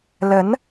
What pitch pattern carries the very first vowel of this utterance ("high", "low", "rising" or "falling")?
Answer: rising